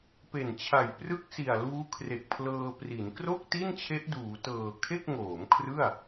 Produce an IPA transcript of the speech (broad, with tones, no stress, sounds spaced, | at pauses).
p e˨˩ n t͡ɕʰ a˨˩ j p r ɯ˥˩ k̚ s i˨˩ a̯ l uː˦˥ kʰ r e˨˩ k̚ pʰ l ɤː˧ p r i˩˦ n k r o˥˩ k̚ t i˥˩ n t͡ɕʰ e˦˥ ʔ d uː˩˦ t ɤː˨˩ kʰ e˥˩ k̚ ŋ oː˩˦ m kʰ r ɯ˥˩ a̯